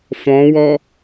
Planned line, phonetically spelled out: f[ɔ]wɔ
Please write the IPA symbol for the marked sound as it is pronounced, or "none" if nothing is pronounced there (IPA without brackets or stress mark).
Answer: ɔ̃